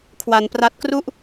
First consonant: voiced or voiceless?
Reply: voiceless